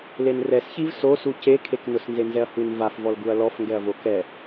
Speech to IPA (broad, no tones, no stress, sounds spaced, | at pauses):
l e n r ɛ s ç i v s o s u c e kʰ e k n ʊ s n z e n z ɛ ɐ̯ h u n v a f v ɔ l ɡ u ɐ̯ l ɔ f ŋ ɡ ɛ ɐ̯ v o k ɛ